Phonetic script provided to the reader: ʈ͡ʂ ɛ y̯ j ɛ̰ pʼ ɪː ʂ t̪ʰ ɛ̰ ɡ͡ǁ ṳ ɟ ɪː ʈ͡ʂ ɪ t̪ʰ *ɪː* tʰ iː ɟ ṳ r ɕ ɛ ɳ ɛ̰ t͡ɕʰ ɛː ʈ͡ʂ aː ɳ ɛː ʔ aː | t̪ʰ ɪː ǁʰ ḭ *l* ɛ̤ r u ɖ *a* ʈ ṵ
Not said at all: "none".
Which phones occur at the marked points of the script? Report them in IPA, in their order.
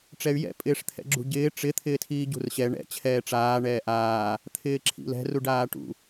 ɪː, l, aː

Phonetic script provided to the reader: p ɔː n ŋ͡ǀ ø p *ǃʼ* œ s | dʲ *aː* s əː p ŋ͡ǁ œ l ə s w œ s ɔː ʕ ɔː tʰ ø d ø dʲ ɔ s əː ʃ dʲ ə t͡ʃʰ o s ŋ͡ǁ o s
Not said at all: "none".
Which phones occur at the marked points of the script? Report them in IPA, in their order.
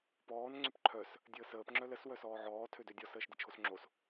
ǃʰ, əː

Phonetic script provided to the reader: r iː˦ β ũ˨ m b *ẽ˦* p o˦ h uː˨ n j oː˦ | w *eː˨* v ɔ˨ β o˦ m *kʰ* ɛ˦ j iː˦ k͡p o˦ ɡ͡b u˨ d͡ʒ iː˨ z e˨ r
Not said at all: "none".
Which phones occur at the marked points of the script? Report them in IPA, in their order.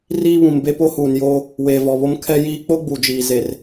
e˦, eː˨, kʰ

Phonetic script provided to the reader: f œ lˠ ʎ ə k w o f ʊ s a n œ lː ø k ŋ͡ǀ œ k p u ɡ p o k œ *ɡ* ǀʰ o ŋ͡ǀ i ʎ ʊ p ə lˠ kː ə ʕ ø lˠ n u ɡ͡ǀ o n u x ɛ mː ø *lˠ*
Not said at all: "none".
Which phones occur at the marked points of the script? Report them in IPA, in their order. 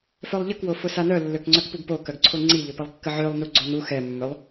ɡ, lˠ

